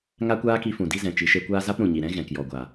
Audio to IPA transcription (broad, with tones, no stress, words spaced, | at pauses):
ŋa˦kʷaː˦ki˧fũ˨ di˧zɛ̃˨ t͡ʃi˨ʃe˧kʷaː˦ za˦pɾũ˨ɲi˨ɾɛ̃˦ ɣɛ̃˨kjɔ˨ɡʷa˨